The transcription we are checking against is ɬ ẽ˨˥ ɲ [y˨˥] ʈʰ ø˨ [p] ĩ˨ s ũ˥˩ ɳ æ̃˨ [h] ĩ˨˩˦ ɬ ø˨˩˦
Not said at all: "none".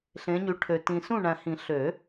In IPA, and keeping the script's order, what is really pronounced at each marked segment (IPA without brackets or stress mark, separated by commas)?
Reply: y˨˥, t, h